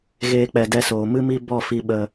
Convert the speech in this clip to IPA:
ɣ eː˦ k͡p ɛ˧ d ɛ˧ s oː˨ m ɨ˦ m i˦ b ɔ˦˨ f i˧ ɓ ə˧

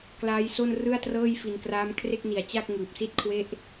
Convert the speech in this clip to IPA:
k l aː˦˥ j s o˥˩ n r ɯ˥˩ a̯ t r ɤː˥˩ j f i˧ n k r aː˦˥ m kʰ r e˥˩ k̚ n i˨˩ a̯ t͡ɕ a˥˩ k̚ ŋ ɯː˨˩ p̚ s i˥˩ t̚ kʰ w e˥˩ ʔ

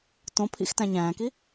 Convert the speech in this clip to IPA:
t õ pʰ ḭ x t æ̃ ɲ æ̃ː k i

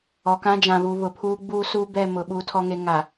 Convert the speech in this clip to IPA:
ɔ˨ k ã˦ d͡ʒ ã˨ β u˨ β ʊ˨ pʰ uː˦ ɡ͡b uː˦ s u˦ b ɛ˦˨ m ʊ˨ ɓ uː˨ tʰ ɔ˨ ŋ e˨ ŋ a˨

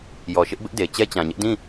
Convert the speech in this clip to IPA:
j ɔ˨ ʃ ɪ˦ ʔ b ɪ˦ ʔ d e˨ t͡ɕ ɛ˦ t͡ɕ ã˨ ɲ ɪ˦ ʔ d ĩ˦˨

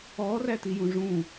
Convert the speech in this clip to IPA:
ɔː r æ t i j ũ ʐ ũ

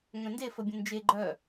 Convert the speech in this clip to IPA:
ŋ œ̃ n d e f ə bʲ ə̃ n d͡ʒ e ɡ͡ǃ œ

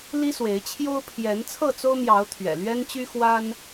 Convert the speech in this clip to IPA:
l i˦ s w e˨˦ ɪ̯ t͡ɕʰ j o˦ ʊ̯ pʰ j ɛ˨˦ n t͡sʰ ɤ˥˨ t͡s o˦ ʊ̯ m j ɑ˨˦ ʊ̯ t̪ʰ ɥ ɛ̰˨˩ l ɥ ɛ˦ n t͡ɕ y˦ x w a˦ n

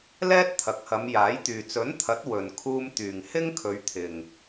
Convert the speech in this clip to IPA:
l ɛː˥ t̚ t̪ʰ ɐ˨ k̚ h ɐ˨˧ m j aː˨˥ j t̪ yː˨ t͡s ɵ˨˥ n t̪ʰ ɐ˨˥ t̚ w ɵ˨ n kʰ uː˧ m t̪ yː˨ ŋ h ɪ˥ ŋ kʰ ɵ˨˧ ɥ t̪ʰ ɪ˨ ŋ

